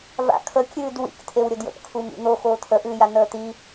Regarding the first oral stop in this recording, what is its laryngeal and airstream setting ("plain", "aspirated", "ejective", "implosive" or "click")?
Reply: aspirated